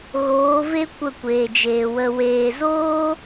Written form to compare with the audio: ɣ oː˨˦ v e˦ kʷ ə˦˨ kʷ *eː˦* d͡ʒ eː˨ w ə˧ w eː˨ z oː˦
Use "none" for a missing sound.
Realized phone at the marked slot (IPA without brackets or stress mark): eː˨